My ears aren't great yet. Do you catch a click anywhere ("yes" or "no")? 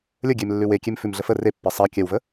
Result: no